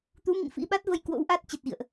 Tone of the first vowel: rising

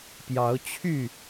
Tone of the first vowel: rising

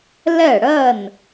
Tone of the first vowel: falling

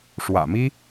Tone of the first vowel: low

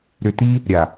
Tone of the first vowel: low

